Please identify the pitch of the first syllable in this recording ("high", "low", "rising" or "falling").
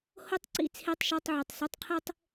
high